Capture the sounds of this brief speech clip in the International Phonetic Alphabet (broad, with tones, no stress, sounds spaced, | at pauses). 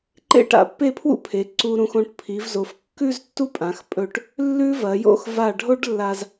ǃ ḛ˥˧ ʈ a̰˧ pː e˥˧ pʰ w ṵ˥ pʰ e˩˧ ǀ u˧ ɾ ũ˧ x õ˧ ʈ pʰ i˩˧ v z o˩˧ f kː ʉ˥˧ z tː u˥˧ pʼ ã˩˧ x pʼ ɵ˧˩ ʈ | lː ʉ˥ v ɐ˩˧ j o̰˥˧ x v a˧˩ ɖʱ o˥ ɖ lː a˧ z